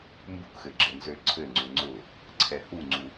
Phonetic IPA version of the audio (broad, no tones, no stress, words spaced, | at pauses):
mbṵxɘ ɡ͡ǁɘnzøǀʰɘŋ͡ǀu ŋ͡ǀʊ | ǀʰɛhuŋ͡ǀu